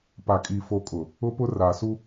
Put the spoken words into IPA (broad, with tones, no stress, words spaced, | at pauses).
pa˨kʼi˨ fo˨ kʼʊ˨ | ʊ˦pʊ˦ raː˨su˦